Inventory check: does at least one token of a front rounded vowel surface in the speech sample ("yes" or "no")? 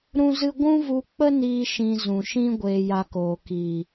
no